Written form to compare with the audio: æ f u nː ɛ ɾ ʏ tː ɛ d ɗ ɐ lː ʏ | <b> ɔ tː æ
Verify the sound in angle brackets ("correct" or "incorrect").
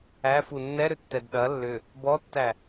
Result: correct